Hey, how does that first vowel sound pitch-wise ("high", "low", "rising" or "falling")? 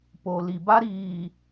low